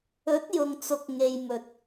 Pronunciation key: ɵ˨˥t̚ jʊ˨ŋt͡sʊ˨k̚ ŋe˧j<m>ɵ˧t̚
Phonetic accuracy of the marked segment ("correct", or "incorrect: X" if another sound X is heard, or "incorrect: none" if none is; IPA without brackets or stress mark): correct